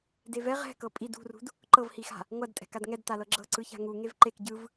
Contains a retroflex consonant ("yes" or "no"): no